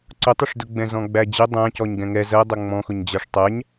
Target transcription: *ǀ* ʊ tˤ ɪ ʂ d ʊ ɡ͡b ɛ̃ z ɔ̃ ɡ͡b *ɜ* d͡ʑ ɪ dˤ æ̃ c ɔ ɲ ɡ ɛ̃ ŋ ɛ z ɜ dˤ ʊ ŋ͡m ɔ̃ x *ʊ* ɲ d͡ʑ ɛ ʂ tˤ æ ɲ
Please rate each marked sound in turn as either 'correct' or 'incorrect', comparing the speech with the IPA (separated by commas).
correct, incorrect, correct